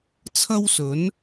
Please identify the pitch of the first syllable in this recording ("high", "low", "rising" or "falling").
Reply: high